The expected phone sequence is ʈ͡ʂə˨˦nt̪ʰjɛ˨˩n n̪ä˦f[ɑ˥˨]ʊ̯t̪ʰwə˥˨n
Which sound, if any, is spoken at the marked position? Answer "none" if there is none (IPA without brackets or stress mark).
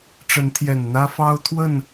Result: ɑ˦